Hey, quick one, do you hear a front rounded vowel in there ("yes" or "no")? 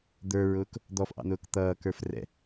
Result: no